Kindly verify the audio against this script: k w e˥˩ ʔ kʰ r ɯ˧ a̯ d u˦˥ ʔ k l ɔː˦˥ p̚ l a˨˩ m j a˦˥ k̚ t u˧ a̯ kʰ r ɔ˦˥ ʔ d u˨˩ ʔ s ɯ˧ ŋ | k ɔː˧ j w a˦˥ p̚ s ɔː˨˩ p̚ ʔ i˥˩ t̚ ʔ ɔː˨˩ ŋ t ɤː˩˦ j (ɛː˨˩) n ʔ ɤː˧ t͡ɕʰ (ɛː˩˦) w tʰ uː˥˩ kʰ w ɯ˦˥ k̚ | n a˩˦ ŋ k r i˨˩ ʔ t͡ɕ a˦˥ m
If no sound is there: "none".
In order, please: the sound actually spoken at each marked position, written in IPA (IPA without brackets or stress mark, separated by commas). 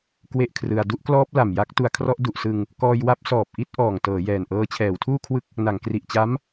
ɛː˨˩, ɛː˩˦